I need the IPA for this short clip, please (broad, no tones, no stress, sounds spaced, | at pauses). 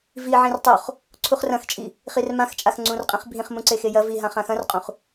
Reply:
v i ʕ ĩ r tˤ o χ | ǀʰ u χ r ɐ̃ x t͡ʃʼ i | χ i r m ã x t͡ʃʼ a x ŋ͡ǀ ũ r qʼ ĩ χ bʱ ĩ χ m ũ ǀ e x e j ɐ v i ɦ ã χ ã x ɐ̃ r qʼ ũ χ